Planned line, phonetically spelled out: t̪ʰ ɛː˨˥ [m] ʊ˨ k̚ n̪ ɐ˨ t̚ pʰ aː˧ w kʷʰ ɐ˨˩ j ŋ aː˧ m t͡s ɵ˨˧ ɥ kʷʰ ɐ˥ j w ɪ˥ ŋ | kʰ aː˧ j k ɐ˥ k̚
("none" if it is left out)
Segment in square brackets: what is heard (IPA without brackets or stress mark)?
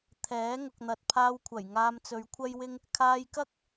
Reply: ŋ